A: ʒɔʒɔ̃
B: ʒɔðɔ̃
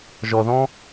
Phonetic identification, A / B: B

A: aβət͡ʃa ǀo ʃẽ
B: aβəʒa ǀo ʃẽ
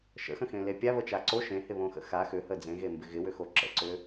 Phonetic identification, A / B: A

